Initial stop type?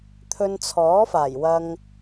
aspirated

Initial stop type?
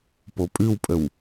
plain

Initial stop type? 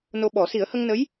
implosive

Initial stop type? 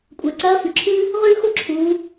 ejective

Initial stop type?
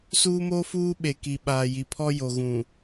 implosive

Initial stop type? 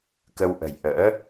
plain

